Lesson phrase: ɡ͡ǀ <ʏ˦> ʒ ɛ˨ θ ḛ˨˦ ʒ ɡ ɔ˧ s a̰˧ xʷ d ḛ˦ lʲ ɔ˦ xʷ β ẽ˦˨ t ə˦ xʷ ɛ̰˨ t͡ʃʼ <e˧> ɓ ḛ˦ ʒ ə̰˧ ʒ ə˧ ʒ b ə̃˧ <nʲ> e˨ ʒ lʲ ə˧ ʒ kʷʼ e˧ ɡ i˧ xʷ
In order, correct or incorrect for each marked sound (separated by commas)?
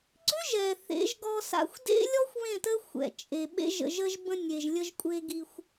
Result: correct, incorrect, correct